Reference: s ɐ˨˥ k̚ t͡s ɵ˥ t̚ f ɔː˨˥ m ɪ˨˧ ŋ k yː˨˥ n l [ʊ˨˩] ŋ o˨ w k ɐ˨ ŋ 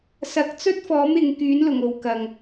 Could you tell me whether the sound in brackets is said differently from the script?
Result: no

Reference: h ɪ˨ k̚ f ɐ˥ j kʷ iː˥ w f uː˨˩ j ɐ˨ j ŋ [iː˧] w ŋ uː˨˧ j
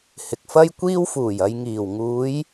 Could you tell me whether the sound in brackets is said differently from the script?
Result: yes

